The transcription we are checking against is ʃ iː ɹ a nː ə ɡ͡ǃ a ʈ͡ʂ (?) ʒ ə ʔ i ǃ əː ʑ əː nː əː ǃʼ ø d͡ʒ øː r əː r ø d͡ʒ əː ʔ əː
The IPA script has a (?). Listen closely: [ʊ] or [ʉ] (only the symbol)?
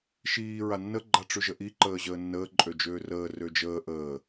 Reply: ʉ